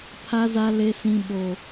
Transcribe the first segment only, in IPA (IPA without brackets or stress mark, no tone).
pʰ